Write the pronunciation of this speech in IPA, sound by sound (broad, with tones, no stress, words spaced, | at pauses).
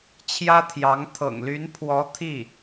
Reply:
t͡ɕʰjä˥t̪ʰjɑ˧˥ŋ t̪ʰɤ̰˨˩ŋly˧˥npʰwɔ˧˥ t̪ʰi˥˩